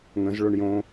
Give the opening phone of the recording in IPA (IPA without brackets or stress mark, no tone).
ŋ